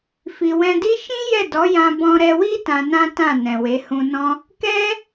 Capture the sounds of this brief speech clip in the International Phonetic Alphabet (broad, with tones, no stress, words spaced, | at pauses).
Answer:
fi˨wɛ̃˧di˦ ʃĩ˦ jɛ˦˨dɔ˨˦jã˧ bɔ̃˧ɾɛ˧wi˦ tã˧nã˦tã˦˨ nɛ̃˨we˨˦ hũ˧nɔ̃˦ | kɛ˦